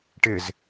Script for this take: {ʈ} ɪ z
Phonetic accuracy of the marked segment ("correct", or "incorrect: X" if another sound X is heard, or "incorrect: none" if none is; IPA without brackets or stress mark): correct